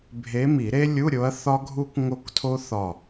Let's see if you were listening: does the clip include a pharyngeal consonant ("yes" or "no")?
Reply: no